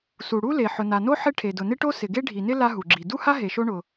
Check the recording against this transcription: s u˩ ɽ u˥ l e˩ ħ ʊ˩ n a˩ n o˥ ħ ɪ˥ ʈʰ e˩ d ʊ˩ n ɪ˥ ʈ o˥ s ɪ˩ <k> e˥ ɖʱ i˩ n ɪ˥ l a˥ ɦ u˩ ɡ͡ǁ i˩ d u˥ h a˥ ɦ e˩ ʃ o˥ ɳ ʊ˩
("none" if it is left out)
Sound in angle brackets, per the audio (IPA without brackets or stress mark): ɡ